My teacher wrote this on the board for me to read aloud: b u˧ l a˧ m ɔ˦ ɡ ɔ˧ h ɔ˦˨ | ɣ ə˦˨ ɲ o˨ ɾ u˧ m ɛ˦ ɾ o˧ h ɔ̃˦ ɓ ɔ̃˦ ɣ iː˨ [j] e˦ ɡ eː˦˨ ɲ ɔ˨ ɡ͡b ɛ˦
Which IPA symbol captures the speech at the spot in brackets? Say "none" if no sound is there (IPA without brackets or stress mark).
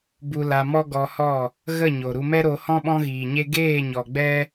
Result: ɲ